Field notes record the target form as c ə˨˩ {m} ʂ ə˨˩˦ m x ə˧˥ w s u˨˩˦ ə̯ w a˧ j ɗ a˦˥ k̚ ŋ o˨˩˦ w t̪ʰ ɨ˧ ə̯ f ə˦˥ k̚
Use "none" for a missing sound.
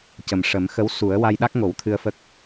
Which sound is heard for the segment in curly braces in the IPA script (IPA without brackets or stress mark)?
m